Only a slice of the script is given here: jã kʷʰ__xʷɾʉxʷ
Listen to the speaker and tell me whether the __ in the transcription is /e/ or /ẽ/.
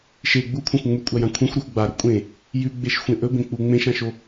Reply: ẽ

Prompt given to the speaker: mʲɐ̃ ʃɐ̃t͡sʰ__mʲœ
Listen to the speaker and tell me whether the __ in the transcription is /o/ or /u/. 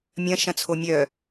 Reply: o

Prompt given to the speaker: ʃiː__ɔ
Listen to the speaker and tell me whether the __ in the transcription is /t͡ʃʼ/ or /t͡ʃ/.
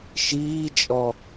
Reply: t͡ʃʼ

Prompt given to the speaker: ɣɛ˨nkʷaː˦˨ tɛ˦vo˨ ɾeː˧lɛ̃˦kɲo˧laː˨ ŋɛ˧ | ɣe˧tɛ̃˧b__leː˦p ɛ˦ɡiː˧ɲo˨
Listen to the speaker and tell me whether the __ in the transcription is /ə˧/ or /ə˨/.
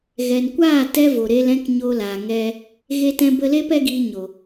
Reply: ə˧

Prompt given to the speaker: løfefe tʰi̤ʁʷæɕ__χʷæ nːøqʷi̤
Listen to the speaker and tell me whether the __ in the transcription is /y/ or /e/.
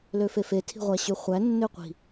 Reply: y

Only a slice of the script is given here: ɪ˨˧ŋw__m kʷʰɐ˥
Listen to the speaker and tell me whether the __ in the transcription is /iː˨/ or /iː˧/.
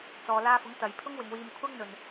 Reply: iː˧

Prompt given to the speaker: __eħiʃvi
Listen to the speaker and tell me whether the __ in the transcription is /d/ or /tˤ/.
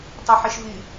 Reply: tˤ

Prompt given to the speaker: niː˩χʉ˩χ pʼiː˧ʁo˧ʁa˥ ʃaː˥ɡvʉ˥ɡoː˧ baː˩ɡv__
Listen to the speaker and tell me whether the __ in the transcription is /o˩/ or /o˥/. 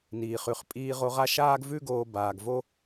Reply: o˥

